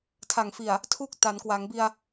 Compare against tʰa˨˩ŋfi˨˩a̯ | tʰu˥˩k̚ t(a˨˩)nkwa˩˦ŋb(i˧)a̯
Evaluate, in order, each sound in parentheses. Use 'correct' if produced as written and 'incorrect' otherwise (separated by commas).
incorrect, correct